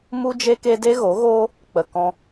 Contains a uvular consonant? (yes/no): no